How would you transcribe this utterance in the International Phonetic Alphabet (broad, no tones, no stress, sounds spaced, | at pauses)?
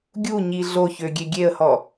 ɡʲ u ɲ i ɮ o ç ø ɡʲ e ɡʲ e ə̯ h ɔ